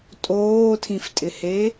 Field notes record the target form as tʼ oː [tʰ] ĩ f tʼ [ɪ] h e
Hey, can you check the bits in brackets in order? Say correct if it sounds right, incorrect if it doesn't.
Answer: correct, correct

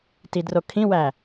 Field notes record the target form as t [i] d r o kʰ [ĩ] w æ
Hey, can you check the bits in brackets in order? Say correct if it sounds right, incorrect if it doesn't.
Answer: correct, correct

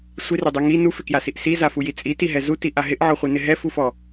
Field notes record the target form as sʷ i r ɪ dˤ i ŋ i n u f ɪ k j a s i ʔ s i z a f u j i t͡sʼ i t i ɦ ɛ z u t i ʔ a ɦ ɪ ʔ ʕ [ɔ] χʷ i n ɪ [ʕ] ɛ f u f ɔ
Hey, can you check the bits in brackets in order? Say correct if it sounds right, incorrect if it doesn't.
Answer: correct, incorrect: ɦ

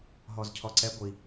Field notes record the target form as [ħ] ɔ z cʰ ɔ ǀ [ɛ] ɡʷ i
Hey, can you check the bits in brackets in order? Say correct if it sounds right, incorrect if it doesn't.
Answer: incorrect: ɦ, correct

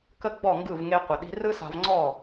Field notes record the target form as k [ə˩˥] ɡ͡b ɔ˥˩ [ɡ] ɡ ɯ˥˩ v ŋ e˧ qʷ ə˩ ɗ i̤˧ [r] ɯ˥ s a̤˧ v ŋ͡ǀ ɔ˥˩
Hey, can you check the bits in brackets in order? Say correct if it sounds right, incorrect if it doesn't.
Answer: incorrect: ə˥, incorrect: ŋ, correct

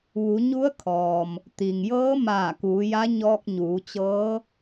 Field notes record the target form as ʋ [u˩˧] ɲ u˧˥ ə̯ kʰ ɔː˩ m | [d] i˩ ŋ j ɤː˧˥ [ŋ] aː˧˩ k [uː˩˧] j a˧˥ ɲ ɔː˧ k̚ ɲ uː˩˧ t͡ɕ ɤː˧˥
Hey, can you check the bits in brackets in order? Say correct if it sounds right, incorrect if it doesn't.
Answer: correct, incorrect: t̪, incorrect: m, correct

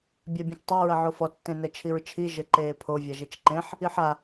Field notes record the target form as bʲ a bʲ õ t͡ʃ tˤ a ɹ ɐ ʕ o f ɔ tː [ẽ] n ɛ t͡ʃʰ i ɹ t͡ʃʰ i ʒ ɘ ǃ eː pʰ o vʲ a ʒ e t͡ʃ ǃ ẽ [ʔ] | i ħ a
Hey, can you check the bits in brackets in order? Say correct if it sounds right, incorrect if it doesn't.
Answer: correct, incorrect: ħ

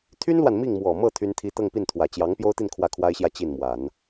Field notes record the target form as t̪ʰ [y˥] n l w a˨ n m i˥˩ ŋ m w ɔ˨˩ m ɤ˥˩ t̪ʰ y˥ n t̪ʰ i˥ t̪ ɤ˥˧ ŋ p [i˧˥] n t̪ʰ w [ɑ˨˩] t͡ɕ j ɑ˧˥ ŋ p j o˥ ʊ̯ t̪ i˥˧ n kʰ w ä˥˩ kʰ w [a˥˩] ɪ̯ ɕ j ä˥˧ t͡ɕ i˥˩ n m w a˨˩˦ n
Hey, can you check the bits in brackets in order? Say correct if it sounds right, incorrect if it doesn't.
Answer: correct, incorrect: i˥˩, incorrect: ä˨˩, incorrect: a˥

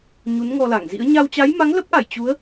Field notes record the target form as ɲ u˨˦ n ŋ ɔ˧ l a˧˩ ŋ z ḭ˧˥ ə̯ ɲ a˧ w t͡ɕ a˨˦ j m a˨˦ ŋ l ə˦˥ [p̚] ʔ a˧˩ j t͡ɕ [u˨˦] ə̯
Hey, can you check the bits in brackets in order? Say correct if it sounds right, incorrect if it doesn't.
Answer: correct, correct

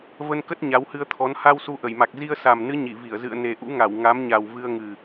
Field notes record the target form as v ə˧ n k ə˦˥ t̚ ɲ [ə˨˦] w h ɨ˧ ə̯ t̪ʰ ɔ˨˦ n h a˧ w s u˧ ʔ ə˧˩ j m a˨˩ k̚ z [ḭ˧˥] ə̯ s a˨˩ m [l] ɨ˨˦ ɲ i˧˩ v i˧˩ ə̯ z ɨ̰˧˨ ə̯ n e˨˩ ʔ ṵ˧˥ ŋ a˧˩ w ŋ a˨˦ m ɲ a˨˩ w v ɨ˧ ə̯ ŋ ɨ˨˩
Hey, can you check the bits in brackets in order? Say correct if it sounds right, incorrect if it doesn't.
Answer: incorrect: a˨˦, incorrect: i˧, incorrect: n

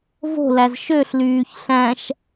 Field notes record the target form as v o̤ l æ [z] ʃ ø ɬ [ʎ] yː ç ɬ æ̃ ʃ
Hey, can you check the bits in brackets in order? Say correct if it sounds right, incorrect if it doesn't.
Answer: correct, incorrect: l

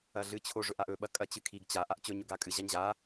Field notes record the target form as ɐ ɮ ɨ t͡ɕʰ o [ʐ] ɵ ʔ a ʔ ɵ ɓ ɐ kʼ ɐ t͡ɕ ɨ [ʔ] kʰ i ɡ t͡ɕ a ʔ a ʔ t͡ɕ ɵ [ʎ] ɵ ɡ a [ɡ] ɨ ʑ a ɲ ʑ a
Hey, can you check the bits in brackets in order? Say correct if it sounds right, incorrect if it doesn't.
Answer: correct, incorrect: none, incorrect: ɲ, incorrect: kʼ

